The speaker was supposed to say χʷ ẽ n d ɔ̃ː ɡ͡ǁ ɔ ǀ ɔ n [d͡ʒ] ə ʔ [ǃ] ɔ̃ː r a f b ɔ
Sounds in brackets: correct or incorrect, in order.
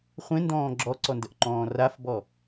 incorrect, correct

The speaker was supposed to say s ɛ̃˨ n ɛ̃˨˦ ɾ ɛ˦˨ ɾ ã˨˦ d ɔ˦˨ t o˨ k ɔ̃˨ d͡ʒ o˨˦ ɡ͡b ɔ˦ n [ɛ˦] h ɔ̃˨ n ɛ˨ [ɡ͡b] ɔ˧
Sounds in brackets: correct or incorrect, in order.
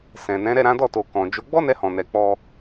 incorrect, incorrect

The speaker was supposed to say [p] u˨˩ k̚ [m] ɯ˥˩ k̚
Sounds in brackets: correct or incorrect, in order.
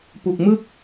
correct, correct

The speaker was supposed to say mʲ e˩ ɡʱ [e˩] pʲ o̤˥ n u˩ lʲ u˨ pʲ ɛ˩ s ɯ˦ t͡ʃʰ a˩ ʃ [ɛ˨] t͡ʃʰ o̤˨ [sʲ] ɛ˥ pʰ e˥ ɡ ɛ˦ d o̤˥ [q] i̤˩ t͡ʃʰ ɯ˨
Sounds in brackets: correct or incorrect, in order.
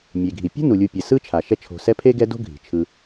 incorrect, incorrect, incorrect, incorrect

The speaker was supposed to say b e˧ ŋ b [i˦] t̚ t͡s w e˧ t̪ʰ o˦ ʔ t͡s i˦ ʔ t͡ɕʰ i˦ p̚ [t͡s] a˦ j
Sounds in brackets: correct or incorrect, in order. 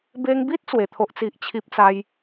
correct, correct

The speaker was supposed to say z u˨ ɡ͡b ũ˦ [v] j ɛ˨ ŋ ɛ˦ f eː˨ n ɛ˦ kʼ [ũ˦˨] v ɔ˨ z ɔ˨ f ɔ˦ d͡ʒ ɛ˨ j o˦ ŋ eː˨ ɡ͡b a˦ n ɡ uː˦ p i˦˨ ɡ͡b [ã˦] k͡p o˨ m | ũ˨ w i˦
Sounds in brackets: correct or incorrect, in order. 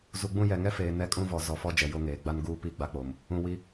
incorrect, incorrect, incorrect

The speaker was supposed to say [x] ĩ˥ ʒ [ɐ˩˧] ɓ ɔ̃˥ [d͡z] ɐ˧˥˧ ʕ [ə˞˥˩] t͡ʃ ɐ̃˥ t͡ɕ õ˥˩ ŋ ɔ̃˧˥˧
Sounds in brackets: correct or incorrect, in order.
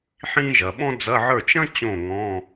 incorrect, correct, correct, correct

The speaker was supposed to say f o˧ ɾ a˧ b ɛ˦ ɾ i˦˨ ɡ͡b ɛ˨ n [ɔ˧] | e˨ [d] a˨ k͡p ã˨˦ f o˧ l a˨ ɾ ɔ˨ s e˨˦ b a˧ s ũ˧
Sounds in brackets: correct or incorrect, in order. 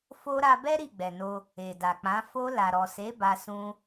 incorrect, correct

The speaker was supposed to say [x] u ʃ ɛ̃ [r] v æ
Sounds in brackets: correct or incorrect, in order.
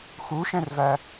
correct, correct

